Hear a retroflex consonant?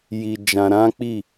no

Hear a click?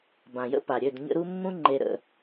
yes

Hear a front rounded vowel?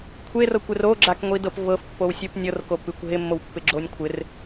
no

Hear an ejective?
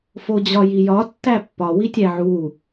no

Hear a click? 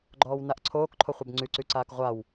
yes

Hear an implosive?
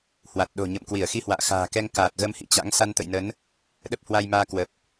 yes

